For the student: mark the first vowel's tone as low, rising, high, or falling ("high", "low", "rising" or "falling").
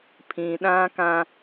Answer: low